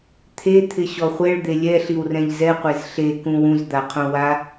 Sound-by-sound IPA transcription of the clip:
t̪ʰ e t̪ʰ ɪ ɕ ɔ χʷ ɛ ɭ d̪ e lʲ ɛ ɬ i w r ɛ̃ ʎ z ɛ qʷ e z ɬ e k ũ w ũ z d̪ a qʰ õ w a

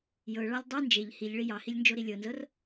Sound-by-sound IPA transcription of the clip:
j ɤ ɭ ɑ lʲ dˤ u n d͡ʒ e ʎ h i ʎ ɭ i j ɑ h i lʲ n d͡ʒ o ɾ i lʲ ɤ n z ɤ r

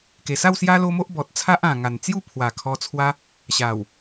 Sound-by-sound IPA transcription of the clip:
k e˨˩ s a˥˧ w s j a˦ l o˦ m o˦ ʔ b ɔ˨ t̚ t͡sʰ a˦ ʔ ã˨˩ ŋ a˨˩ n t͡s j u˥˧ pʰ w a˨˩ kʰ ɔ˧ t͡sʰ w a˦ | ɕ a˨˩ w

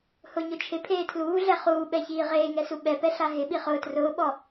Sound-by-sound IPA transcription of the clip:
h ʊ ɲ ʊ t͡ʃʰ ɪ pʰ eː tʰ l uː ɮ ɛ χ uː ɓ ɛ ç iː ʁ eː ŋ ɛ s u ɓ ɛ p ɛ ɬ a ɦ ɪ ɓ i χ ʊː t r ʊː ɓ ɔ

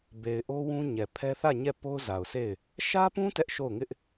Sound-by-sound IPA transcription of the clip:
b e˨ ɪ̯ ʔ o˦ w ũ˦ ɲ ɛ˨ pʰ ɛ˦ θ ä˦˨ ɲ ɛ˦˨ p o˦ ʊ̯ z a˨ ʊ̯ sʰ e˦˨ ɪ̯ | ʃ ä˦ p ũ˦ t ɛ˦ ʔ ʃ o˦˨ ʊ̯ ŋ ɪ˦ ʔ

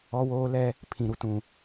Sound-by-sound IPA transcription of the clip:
ɔ˦ w oː˦ l ɛ˦ | pʰ ĩ˨ ɾ u˨ t ũ˨

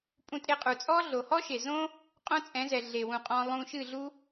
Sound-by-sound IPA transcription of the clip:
pʼ ũ˧ tʼ e˧ qʼ u˨ t͡sʼ ɔ˦ ɮ o˨ h ɔ˦ ʃ e˨ z õ˦ | qʼ õ˦ t͡sʼ ɛ̃˨˦ z ɛ˨ ɮ e˨ w ũ˨ qʼ ɔ̃˧ lˠ ũ˧ ʃ ɨ˦˨ ɮ u˦

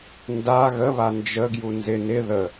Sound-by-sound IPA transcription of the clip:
n d a ɣ ə β a n d͡ʒ ə ɡ j u n z ɪ n ɪ ð ə

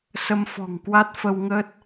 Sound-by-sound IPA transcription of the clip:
s ə˧ m f ɔ̤˨˩ ŋ k w a˦˥ t̚ f ə˧ w ŋ əː˦˥ t̚

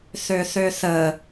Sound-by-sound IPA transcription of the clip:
θ ø θ ø θ ə

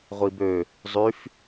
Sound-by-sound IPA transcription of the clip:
ʁʷ i b ø | zˤ y f

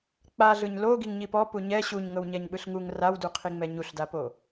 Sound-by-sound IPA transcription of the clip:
k͡p a ɮ ɯ ɲ l o ɡ i ŋ ɲ i p ɔ p u ɲ ɛ ɕ u ɲ ŋ ɤ w ɲ ɛ ɲ ɓ ɯ ɬ ŋ u ŋ r a w d u qʰ i ŋ͡m ɛ ɲ u ɬ d a p o

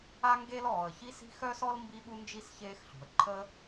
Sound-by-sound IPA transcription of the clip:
a˥ ŋ ɡ e˥ l ɔː˩ ə̯ ç i˥ s i̤˥ x œ˥ s ɔ˥ l m b i˥ ɓ u˥ n d͡ʒ i˥ s ç eː˥ x ɬ ṳ˩ ə̯ ǃʰ ə˥

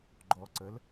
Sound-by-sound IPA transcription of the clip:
ɡ͡ǃ ɔ ǀ ə l

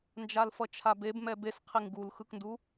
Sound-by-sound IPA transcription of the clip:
n d͡ʒ a l f ʌ t͡ʃʰ a b e b m ɛ b e s qʰ i ŋ ɡ u l x ɯ k n d u

